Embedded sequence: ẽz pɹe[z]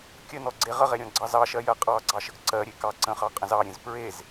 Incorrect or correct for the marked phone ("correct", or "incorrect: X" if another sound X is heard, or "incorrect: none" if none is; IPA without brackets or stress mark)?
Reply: correct